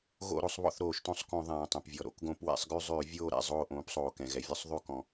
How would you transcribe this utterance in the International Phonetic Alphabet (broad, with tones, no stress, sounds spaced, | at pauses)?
ɣ o̰˦˨ ɾ o˦˨ sˤ β ɔ̰˦˨ θ ɾ oː˧˩˧ ʃ t õ˦˨ sˤ k õ˧˩˧ ðˤ ɛ̃ː˩ tˤ ɛ̃˩ p vʲ ɔ˩ ɾ o̰˨˥ k ɡ õ˧˩˧ p w ɛ̰˧˩˧ sˤ ɡ ʉ˦˨ zˤ ʉː˧˩˧ vʲ oː˦˨ ɾ ɛ̰˩ zˤ oː˦˨ ʔ õː˨˥ p sˤ oː˩ k ɛ̃˩ ɣ ɛ˩ vʲ ɔ˦˨ sˤ ðˤ ʉ˦˨ k ɔ̃˩